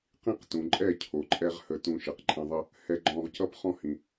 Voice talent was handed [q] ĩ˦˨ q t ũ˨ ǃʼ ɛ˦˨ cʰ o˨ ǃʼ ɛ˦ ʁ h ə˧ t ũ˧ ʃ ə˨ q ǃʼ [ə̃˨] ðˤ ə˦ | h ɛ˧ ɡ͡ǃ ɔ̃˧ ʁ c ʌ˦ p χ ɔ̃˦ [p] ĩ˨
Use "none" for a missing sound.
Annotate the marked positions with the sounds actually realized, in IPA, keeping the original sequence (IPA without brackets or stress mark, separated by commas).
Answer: q, ə̃˧, h